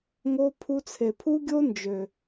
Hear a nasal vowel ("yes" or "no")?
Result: no